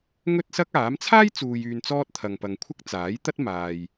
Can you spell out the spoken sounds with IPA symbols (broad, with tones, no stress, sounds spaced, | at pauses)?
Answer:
ŋ ɵ˥ t̚ s ɐ˥ k̚ aː˨˥ m t͡sʰ aː˥ j t͡s uː˨ j yː˨ n t͡s ɔː˧ t̚ t̪ʰ ɐ˨ ŋ p ɐ˨ ŋ kʷʰ ɐ˥ k̚ t͡s aː˨˥ j t̪ ɐ˥ t̚ m aː˨ j